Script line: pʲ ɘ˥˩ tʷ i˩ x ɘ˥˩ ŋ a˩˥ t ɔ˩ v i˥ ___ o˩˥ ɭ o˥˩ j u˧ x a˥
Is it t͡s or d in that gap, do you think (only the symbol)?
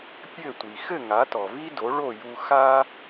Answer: d